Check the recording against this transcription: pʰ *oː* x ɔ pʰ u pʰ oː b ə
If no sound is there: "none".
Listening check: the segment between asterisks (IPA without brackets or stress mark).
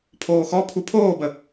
oː